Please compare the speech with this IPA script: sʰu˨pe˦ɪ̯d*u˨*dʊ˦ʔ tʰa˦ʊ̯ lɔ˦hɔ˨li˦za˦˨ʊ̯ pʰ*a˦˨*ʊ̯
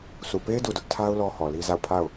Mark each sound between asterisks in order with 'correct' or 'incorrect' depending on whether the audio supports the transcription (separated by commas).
correct, correct